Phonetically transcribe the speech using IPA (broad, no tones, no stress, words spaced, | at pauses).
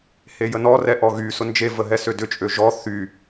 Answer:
hejənɔ rɛʔɔɣy sʊnd͡ʒe vəɦɛsødʏ t͡ʃʼøʒɔ θy